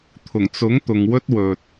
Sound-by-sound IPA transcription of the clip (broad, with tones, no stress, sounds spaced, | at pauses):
t̪ʰ ʊ˨˩ ŋ t͡s ʊ˨˥ ŋ t̪ ʊ˨ ŋ w ɵ˥ t̚ w ɵ˨ t̚